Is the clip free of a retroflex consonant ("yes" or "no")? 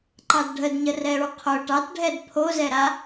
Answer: no